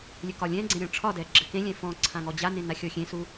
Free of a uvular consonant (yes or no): yes